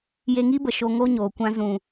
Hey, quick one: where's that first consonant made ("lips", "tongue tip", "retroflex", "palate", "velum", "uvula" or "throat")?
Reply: palate